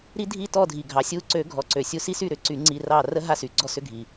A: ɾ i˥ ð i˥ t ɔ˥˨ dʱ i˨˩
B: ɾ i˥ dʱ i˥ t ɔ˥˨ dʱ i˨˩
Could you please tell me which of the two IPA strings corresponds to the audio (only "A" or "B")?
B